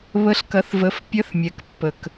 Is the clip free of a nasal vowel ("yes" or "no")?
yes